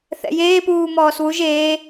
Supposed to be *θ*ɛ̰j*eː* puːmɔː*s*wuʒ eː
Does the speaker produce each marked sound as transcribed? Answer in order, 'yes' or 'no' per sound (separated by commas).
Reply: yes, yes, yes